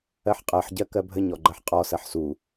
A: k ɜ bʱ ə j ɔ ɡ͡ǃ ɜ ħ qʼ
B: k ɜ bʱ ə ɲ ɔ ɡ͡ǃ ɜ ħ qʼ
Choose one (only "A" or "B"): B